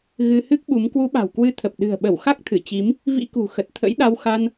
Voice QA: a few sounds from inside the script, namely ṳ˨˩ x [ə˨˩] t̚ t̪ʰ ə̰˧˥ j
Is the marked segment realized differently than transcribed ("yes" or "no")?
no